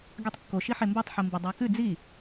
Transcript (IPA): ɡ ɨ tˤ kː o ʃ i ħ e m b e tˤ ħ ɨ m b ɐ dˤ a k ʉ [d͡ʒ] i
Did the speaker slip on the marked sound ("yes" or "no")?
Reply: yes